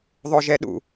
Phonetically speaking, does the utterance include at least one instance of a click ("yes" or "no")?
no